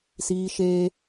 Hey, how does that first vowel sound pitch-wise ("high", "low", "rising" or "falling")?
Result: high